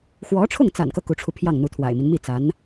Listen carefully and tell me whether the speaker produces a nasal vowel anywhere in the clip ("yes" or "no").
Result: no